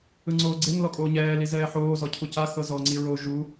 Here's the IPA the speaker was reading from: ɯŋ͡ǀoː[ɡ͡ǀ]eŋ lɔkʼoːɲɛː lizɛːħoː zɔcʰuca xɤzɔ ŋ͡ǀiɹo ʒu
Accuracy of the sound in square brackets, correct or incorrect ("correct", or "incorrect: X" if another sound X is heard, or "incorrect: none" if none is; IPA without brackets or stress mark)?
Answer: correct